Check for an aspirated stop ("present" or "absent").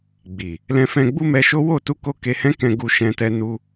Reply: absent